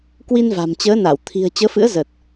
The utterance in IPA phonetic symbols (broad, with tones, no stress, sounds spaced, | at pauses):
k w i˧ n v a̤˨˩ m t͡ɕ əː˨˦ n a˧˩ w t̪ʰ i̤˨˩ ə̯ t͡ɕ əː˨˦ f ɨ̰˧˥ ə̯ z ə˨˩ t̚